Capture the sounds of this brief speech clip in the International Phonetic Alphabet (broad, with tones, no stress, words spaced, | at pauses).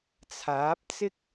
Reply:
t͡sʰaː˨˥p̚t͡sɪ˥k̚